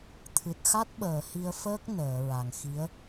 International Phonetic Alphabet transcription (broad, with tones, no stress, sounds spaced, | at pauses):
t̪ʰ ɨ˨˩ t̚ x a˦˥ t̚ ɓ əː˨˩˨ h i˧ ə̯ f əː˦˥ k̚ n əː˨˩˨ ɹ a˨˩ ŋ x i˧˥ ə̯